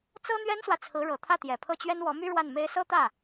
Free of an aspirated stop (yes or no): no